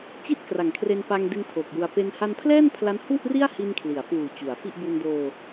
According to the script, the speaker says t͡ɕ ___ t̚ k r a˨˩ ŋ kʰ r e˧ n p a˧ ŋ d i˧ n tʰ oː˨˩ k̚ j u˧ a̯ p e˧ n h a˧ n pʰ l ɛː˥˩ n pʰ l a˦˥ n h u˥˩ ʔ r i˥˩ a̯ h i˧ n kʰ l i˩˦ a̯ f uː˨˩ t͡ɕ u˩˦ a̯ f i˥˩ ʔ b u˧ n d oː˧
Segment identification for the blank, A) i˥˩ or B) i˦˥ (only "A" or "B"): A